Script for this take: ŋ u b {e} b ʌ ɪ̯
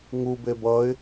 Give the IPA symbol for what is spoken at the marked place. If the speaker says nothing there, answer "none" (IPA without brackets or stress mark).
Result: e